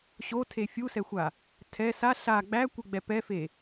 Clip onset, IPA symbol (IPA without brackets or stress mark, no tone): ɕ